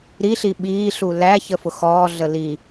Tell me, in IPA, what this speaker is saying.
ɾ i ɬ i ɓ iː ɬ u l æ ç ə f ʊ x ɔː ɮ ə l i

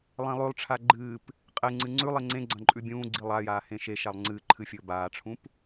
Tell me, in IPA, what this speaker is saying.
lˠ ẽ lˠ ʉ lˠ ʈ͡ʂʰ a ɡ͡ǃ ɨː p | qʼ e ŋ͡ǀ ɨ ŋ͡ǀ ʉ lˠ i ŋ͡ǀ ẽ ɡ͡ǀ ɐ̃ ǃʼ ʉ bʲ ũː ɡ͡ǀ i lˠ a j aː h ẽ ʃ e ʃ a lˠ ŋ͡ǀ ɨː ǃʰ ɨ fʲ ɵː b aː ʈ͡ʂʰ ũ p

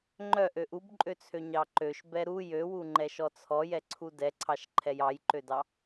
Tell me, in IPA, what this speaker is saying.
ŋ͡ǃ œ ʔ ø ʔ u b ǃʼ ø t͡sʰ ø ɲ ɑ ǃ ø ʃ b ɛ ɾ u j ø w u ŋ͡ǃ ɛ ʃ ɔ t͡sʰ ɔ j ɛ ǀʰ u d ɛ ǀʰ ɑ ʃ ǃʰ ɛ j ɑ j ǃ ø d ɑ

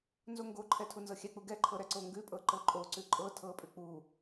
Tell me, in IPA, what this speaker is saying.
n z o ŋ ɡ o ǃʰ ɛ tʰ u n z ɤ xʲ ɛ k͡p u ɡ ɛ ǃʰ ɤ ɾ ɛ ǀ o ŋ ɡ ʉ pʼ ɤ ǃ ɤ ǃʼ o ǀ ʉ ǃʼ ɤ tʰ ɤ pʼ ʉ k͡p u

